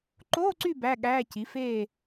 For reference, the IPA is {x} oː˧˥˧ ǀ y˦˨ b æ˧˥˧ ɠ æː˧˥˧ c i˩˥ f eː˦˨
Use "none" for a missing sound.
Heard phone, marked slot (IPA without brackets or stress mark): ǃ